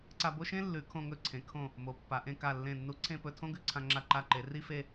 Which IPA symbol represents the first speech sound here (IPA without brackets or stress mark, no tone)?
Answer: ǀ